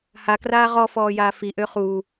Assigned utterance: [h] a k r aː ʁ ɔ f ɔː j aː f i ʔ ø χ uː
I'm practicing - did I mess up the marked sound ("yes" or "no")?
no